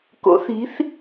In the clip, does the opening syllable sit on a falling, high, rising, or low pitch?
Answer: rising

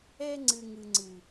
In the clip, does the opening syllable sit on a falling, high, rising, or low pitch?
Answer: high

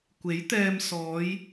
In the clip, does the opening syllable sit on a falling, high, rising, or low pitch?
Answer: rising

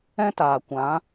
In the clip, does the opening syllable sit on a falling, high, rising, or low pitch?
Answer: high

